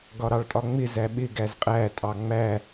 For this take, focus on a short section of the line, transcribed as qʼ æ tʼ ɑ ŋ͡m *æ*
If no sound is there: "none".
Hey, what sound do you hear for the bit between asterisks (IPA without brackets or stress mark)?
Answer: æ